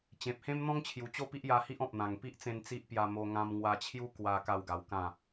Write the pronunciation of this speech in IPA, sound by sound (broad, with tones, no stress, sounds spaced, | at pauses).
t͡ɕ ẽ˨ p̚ h ẽ˦ m n̪ ɔ̃˦ ŋ t͡ɕʰ j u˨˩ t͡ɕ o˥˧ p i˦ ʔ j a˧ h i˦ ʔ ɔ̃˨ p̚ n̪ ã˨˩ ŋ p i˦ ʔ t͡s ẽ˧ n t͡s i˦ ʔ p j a˧ m o˧ ŋ ã˧ m ŋ w a˧ t͡ɕʰ j u˦ k w a˧ k a˥˧ w ɡ a˧ w k ã˥˧